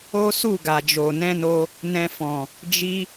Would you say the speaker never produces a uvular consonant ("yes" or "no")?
yes